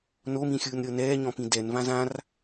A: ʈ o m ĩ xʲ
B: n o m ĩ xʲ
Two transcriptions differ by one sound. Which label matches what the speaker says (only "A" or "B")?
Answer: B